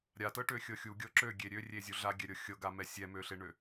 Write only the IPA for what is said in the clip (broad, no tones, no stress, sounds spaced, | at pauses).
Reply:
ɾʲ a t ɤ ʈ ø xʲ ɤ xʲ u ɡʲ ɤ ǁ ø ɡʲ e ɾʲ ø rʲ e zʲ u ɮ a ɡʲ ɛ ɾʲ ɤ xʲ ɤ ɡ a m ɛ sʲ ɛ m ø ɬ e ɳ ø